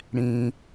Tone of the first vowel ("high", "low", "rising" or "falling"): low